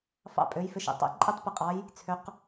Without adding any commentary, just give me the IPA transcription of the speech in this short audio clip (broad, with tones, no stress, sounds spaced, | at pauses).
f ɑ̰˥˩ pʼ ø˩˥ j f ɪ˧ ʃ ḛ˩ tˤ ɛ̰˧ ǃʼ e˥ tˤ p ɪ˧ qʼ ɑ˩˥ j | t͡sʰ ø˩˥ q